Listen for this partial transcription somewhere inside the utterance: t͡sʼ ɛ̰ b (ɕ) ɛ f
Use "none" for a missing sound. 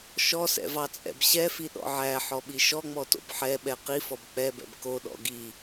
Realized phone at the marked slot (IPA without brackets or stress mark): ɕ